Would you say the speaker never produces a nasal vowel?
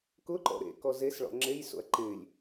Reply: yes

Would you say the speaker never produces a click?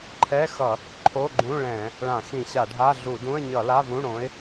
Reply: no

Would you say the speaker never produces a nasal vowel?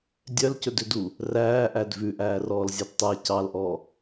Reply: yes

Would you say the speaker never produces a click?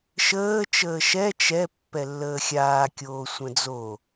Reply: yes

